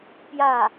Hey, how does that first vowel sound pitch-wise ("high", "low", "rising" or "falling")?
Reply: falling